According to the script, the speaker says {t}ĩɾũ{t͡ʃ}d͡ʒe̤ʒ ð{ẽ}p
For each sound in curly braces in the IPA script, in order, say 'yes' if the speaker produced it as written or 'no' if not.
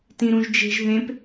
yes, no, yes

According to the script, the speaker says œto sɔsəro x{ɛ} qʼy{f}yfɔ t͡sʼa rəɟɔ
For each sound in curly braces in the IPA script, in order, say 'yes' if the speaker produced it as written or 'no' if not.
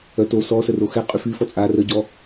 yes, yes

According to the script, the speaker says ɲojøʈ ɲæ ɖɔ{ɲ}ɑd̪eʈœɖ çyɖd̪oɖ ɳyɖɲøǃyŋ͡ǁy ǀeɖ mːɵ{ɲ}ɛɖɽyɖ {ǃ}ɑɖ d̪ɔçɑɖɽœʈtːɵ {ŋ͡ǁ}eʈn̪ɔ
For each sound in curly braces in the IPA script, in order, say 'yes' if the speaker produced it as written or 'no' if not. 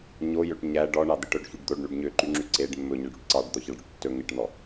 no, yes, no, no

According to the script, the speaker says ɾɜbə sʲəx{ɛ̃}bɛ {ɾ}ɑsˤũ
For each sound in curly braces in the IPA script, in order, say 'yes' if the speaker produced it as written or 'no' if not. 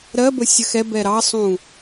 no, yes

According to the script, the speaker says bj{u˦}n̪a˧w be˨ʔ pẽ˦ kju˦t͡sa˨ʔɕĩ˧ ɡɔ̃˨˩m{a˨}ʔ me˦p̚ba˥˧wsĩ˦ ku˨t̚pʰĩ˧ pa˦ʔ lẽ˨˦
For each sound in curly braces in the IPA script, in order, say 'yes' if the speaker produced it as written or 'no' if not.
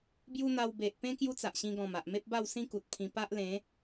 yes, yes

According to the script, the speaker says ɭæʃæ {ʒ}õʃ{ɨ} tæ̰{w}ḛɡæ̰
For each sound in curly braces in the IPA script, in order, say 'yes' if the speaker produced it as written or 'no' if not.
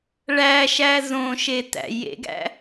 no, no, no

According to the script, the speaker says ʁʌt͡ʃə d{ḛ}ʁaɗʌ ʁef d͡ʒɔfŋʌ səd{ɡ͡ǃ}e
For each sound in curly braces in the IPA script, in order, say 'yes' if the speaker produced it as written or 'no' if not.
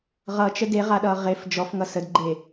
no, yes

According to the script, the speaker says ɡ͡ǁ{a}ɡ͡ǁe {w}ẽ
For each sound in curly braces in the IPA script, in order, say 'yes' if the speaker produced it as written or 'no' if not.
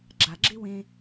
yes, yes

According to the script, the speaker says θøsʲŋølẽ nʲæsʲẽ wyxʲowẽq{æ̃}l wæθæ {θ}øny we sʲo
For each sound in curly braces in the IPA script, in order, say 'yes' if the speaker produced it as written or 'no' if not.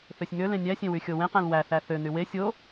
yes, yes

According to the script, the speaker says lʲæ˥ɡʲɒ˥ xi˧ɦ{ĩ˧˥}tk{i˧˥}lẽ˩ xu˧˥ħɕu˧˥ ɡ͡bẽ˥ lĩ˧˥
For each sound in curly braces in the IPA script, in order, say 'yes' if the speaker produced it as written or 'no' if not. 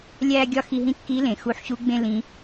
no, yes

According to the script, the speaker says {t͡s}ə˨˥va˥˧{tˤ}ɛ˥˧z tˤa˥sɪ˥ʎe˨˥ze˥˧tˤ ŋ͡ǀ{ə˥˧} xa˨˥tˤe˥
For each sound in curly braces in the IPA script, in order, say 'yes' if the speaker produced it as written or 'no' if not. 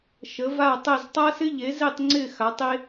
no, yes, no

